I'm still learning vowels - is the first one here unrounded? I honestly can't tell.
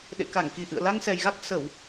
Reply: yes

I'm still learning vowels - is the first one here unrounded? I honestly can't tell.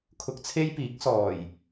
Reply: no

